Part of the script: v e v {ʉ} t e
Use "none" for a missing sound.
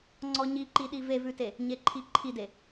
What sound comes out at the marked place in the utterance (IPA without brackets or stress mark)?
ʉ